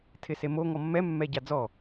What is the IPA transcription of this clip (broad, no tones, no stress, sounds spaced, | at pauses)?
tʰ ɪ s e m o ŋ ɔ mː ɛ mː ɛ ɟ a d͡z ɔ